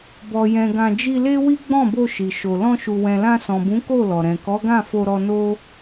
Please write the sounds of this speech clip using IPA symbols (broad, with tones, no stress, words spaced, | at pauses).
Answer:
bɔ˨jɛ̃˨ ɡã˧ d͡ʒi˧le˦wi˦ ɡ͡bɔ̃˦˨bo˧ ʃi˨ʃo˨ lɔ̃˧ʃu˨wɛ̃˨lã˧ sɔ̃˨bũ˨˦ ko˦˨ lɔ˨ɾɛ̃˨ kɔ˨˦ɡã˦˨ fo˧ɾɔ˧ no˦